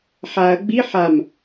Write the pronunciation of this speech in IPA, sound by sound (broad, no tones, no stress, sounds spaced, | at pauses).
ħ a ɐ̯ ɡ͡b i ħ a m